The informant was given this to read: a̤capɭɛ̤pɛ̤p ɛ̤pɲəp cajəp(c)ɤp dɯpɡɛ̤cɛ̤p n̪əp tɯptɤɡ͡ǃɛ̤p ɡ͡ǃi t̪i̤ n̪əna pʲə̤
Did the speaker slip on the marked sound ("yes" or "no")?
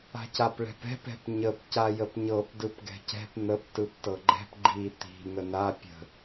yes